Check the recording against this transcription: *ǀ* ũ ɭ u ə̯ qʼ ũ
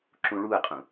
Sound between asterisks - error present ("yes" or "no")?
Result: yes